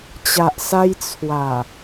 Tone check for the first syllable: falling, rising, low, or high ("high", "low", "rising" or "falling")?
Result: low